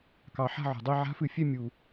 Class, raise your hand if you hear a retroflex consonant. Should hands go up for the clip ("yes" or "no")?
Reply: no